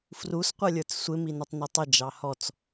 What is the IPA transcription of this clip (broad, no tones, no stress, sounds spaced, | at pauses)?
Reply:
f r u s qʷ ʌ lʲ ə˞ t͡s sʷ ɪ m i n ʌ tˤ n ɪ tˤ ɪ d͡ʒ ɑ h ɔ t͡s